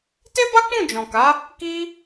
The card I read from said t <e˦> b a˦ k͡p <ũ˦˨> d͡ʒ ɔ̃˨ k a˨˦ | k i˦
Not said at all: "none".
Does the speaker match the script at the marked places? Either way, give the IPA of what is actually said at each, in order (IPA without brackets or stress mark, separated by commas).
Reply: e˦, ũ˦˨